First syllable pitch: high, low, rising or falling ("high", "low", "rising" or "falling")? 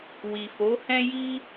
low